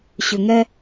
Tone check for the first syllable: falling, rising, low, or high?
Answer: low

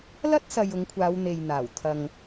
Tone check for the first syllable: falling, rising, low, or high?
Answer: high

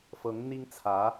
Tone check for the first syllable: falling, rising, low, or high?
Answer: rising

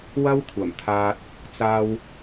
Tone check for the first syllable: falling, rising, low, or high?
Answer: high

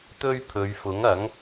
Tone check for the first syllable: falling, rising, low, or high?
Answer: high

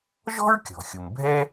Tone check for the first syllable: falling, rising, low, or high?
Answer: high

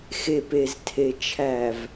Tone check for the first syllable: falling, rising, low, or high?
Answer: low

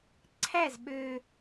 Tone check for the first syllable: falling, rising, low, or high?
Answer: falling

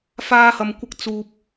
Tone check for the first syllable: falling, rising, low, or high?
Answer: high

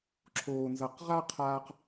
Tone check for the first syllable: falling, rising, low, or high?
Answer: low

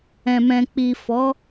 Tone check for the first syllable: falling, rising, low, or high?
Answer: low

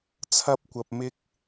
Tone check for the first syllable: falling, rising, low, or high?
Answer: high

